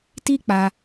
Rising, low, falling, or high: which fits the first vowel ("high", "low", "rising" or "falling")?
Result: high